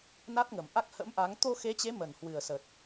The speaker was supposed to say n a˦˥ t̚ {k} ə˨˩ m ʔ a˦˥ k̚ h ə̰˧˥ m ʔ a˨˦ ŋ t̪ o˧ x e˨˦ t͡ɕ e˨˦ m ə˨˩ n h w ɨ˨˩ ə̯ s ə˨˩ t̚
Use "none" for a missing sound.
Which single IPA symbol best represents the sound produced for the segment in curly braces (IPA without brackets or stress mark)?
ŋ